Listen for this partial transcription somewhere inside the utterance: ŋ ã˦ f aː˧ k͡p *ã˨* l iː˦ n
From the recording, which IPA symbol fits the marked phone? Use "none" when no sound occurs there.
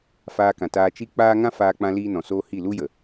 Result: ã˧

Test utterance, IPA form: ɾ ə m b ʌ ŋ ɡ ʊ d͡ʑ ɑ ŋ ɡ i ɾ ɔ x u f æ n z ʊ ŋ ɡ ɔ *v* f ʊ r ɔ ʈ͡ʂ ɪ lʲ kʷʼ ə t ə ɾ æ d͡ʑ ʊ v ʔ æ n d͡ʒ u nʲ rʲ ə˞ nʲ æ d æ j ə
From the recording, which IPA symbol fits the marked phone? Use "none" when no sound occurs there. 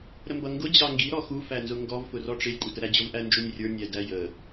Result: v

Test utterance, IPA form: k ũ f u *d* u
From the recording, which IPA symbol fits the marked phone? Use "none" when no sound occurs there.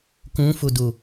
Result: d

